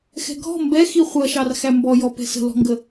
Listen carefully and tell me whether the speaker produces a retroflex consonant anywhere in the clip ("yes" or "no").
no